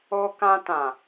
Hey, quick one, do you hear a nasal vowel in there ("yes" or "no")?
yes